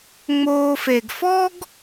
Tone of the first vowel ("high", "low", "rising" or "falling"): low